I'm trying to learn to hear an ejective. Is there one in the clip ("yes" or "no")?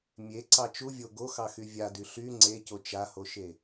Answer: no